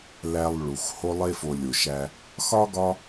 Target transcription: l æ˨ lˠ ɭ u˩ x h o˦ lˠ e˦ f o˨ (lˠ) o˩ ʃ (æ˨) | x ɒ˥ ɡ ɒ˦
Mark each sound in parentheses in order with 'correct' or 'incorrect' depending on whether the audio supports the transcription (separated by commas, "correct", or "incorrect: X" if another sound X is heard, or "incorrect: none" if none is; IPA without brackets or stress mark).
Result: incorrect: lʲ, correct